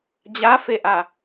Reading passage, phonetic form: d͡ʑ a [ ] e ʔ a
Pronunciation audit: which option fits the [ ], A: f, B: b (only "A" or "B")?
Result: A